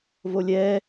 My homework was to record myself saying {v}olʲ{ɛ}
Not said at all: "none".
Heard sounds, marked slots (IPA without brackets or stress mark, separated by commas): v, ɛ